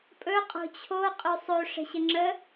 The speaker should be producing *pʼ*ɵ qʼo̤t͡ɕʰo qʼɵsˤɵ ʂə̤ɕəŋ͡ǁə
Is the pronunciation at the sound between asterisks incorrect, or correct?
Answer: correct